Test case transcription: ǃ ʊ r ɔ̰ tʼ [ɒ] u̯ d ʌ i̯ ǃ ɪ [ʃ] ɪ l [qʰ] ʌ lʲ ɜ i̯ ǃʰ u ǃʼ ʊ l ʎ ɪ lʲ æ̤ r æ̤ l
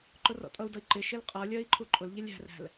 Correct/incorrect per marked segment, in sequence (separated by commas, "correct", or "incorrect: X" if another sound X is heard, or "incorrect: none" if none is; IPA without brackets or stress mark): incorrect: ʌ, correct, incorrect: qʼ